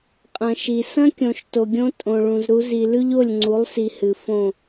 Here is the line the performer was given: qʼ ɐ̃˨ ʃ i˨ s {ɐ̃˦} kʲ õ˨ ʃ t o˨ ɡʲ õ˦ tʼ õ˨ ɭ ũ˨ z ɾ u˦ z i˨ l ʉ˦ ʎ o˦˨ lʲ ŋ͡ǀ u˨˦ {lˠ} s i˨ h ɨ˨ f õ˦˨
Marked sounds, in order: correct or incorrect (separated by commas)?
correct, correct